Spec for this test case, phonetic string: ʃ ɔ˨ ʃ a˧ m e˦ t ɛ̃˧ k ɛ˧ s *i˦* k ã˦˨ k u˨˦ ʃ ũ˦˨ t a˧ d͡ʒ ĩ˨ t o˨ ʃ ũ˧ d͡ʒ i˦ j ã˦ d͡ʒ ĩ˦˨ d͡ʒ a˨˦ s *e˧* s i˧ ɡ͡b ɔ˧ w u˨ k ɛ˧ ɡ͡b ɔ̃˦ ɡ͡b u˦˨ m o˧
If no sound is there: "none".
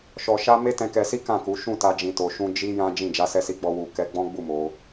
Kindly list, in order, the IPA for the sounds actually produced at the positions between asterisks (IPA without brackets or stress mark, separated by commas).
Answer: i˦, ɛ˧